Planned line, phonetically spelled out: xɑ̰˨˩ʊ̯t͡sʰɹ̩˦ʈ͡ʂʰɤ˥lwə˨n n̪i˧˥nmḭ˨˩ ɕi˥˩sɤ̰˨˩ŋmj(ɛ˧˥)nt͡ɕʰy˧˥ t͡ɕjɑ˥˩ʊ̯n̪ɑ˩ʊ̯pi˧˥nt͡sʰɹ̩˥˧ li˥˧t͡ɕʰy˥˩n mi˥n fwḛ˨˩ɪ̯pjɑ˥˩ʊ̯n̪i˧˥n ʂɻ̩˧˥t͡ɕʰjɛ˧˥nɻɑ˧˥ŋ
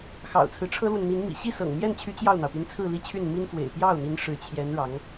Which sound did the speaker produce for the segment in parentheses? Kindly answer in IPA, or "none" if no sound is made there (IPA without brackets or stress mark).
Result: ɛ˥˩